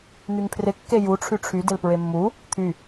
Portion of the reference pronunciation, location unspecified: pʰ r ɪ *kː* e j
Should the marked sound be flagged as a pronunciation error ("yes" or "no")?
no